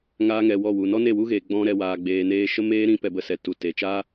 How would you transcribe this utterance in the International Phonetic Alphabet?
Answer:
ŋ aː˧ ŋ ɛ˨ w ɔ˦˨ w u˨ n ɔ˦ n e˦˨ w u˦ ɣ eː˨ ɡ͡b ɔ̃˦ ɾ ɛ˧ w aː˧ ɡ͡b eː˧ n eː˦ ʃ ə˦ m eː˦ ɾ ĩ˦ p ɛ˧ b ə˧ s ɛ˨ t u˨ t e˨ t͡ʃ a˦

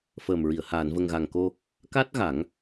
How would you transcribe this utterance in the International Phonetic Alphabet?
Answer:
f əː˨˩ m ɹ i˨˩˨ ə̯ h aː˨˩˨ n v ə˨˩ ŋ ɣ a˨˩ ŋ k o˧ | k a˦˥ t̚ ɣ a˨˩˦ ŋ

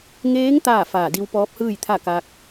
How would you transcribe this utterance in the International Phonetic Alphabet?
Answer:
ŋ eː˧˥ ŋ t̪ aː˥˨ f aː˧˩ d i˧ w p ɔː˧˥ p̚ h ɯː˥˨ j t̪ʰ a˥˨ k a˧ k̚

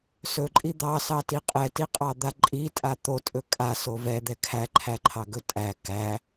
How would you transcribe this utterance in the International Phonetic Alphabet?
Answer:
s ɵ ǃʼ i d̪ ɑ s ɑ t i qʼ ɛ t i qʼ ɑ d̪ a ǃʼ i tʼ a t̪ o tʼ ɵ kʼ a s o v ɛ d̪ ɛ kʰ æ ǃʰ æ ǃʰ ɑ ɡ ɵ tʼ æ k æ

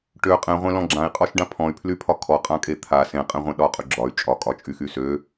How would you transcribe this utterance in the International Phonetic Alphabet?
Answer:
ʈ ø qʼ ẽ ʁʷ ẽ l ɔ̃ ɡ͡ǁ ã i̯ qʼ ɔ ʃ ɖ ã pʰ ɔ̃ y̯ pʰ l y pʰ ɒ kʰ ɔ qʼ ã kʼ e t̪ʰ a s ẽ qʼ ẽ ʁʷ ẽ ɗ ɒ qʼ y ɡ͡ǁ ɒ y̯ t͡ʃʼ ɒ kʼ ɒ t͡ʃʼ y x y s ø

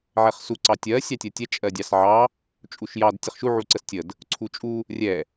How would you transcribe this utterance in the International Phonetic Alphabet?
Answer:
ʕ ɛ χ s u ǀ ɑ tʲ ɜ sʲ ɑ tʲ ɜ tʲ ɛ t͡ʃʼ ɜ dʲ ɑ s ʕ ɑ | t͡ʃʼ u ʃ j ɑ d tʲ ə χ ʃ u ʕ u ǀ ə s tʲ ə d | ǀʰ u t͡ʃʼ u | rʲ ɛ

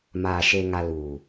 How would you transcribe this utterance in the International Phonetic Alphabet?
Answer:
m aː˨ ʃ e˨ ŋ a˨ l uː˨

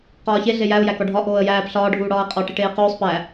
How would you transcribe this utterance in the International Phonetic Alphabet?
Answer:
q ɒː ç e ɮ e j æ ʊ̯ j æ k ɒ ɖʱ ɒ ʔ oː ə̯ j æː p ɬ ɒː ɖʱ uː ɽ ɒː ə̯ qʼ ɒ ʈ i ʈ eː q uː sˤ p æ

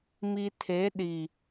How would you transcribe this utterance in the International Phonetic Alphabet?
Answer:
m i˨ tʰ e˨˦ ɗ i˨

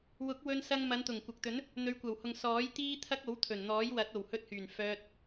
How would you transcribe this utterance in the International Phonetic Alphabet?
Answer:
w ʊ˨˥ k̚ w ɵ˧ n s ɐ˧ ŋ m ɐ˨˧ n t̪ ʊ˨˩ ŋ kʷ ɐ˨ k̚ t̪ ɵ˨˥ n | n̪ ɵ˨˧ ɥ kʷ ɐ˨˩ w h ʊ˨ ŋ s ɔː˨˥ j t̪ iː˥ t̪ʰ ɐ˥ k̚ o˨˥ w t̪ʰ ɵ˨˩ n n̪ ɔː˨˥ j w ɐ˨˥ t̚ o˨˩ w h ɵ˧ t̚ h yː˨˩ n f œː˧ t̚

